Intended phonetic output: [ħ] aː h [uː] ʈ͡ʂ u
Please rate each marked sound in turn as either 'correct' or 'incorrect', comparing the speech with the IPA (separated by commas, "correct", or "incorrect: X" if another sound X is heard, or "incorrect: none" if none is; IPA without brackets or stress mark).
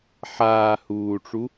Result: correct, correct